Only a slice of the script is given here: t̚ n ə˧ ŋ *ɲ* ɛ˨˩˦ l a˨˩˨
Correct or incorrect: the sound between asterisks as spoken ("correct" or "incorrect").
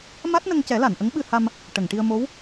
incorrect